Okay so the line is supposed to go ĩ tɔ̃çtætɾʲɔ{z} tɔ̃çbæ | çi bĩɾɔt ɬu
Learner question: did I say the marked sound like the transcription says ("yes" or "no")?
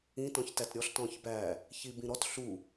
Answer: no